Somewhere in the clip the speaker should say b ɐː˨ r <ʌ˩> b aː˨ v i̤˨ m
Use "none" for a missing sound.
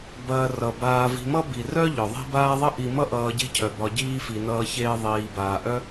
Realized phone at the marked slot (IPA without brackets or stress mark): ʌ˩